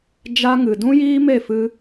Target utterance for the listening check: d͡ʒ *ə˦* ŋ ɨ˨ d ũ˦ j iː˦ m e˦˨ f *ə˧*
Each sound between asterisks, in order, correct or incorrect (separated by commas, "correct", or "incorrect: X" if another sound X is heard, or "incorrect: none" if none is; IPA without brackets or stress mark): incorrect: a˦, incorrect: ɨ˧